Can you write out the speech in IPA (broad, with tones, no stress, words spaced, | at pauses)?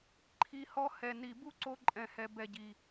ǃʰi˧ hɔ˧ hɛ˨ni˨ bu˦ǀo˧ ǃʼɛ̃˨hɛ˨bɛ˨ɟi˨